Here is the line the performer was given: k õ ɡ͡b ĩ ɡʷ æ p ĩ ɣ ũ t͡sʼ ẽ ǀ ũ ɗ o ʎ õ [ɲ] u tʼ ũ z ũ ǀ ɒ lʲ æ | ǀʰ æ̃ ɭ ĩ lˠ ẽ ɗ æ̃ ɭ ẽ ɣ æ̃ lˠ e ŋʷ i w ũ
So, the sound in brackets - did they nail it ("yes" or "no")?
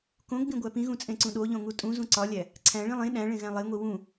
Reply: no